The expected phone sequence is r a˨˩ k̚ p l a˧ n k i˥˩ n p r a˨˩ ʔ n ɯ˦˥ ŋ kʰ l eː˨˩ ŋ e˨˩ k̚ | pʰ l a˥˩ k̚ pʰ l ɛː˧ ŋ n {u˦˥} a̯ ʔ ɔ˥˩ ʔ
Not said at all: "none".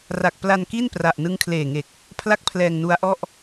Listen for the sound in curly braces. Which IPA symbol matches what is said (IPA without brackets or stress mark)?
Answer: u˦˥